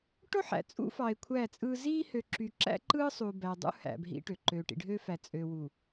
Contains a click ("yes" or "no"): yes